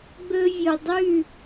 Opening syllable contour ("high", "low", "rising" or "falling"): high